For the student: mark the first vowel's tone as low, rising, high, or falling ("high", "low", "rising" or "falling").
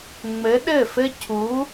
rising